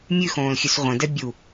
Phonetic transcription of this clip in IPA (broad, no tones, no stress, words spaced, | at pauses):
mʲʉxõːlxʲʉs ʁʷə̃dɛ bʲu